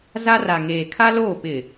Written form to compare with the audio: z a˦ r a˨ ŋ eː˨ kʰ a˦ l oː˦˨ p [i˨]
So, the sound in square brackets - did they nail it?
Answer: no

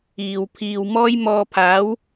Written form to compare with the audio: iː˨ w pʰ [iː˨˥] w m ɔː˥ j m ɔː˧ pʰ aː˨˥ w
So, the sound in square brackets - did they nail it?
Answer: no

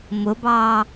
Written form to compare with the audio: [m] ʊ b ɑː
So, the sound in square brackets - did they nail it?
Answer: yes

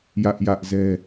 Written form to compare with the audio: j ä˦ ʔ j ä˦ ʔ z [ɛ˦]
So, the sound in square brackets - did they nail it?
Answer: yes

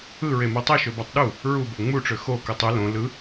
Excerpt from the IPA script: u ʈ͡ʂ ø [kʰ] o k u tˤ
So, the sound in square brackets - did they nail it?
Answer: no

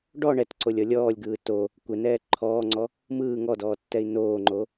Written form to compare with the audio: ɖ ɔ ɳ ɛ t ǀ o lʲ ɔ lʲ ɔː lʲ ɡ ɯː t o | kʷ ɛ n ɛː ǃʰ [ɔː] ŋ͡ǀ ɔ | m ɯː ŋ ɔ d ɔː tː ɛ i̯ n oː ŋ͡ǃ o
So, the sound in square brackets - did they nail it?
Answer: yes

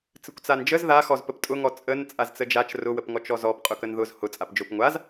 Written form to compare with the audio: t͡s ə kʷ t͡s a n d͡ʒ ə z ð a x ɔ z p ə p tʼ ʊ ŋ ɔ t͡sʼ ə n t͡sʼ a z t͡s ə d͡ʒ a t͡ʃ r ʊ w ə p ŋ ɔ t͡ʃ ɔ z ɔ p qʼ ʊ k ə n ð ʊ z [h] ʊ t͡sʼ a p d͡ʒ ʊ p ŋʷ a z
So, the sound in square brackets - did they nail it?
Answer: yes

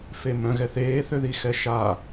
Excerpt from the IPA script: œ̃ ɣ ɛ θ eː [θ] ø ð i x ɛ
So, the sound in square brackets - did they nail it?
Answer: yes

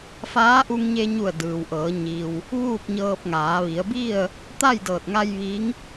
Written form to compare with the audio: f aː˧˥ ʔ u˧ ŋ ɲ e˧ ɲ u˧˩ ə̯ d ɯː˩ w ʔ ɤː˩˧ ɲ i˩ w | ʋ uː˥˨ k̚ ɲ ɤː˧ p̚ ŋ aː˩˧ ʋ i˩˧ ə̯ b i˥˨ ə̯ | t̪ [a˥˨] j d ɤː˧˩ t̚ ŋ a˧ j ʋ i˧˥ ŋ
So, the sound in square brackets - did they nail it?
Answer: yes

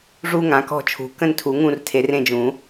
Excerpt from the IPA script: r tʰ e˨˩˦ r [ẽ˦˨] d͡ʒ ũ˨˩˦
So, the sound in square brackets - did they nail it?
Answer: yes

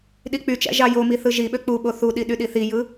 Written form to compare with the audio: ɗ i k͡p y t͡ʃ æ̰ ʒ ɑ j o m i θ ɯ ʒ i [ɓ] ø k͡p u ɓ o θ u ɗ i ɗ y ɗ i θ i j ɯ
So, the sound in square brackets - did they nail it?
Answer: yes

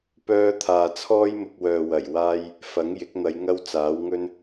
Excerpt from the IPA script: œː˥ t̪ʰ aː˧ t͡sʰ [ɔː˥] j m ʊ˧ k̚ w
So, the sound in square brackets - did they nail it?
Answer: yes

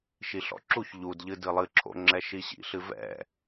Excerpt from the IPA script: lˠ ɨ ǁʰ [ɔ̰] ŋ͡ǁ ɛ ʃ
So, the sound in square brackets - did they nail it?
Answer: no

